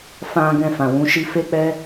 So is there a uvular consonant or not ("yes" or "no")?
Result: no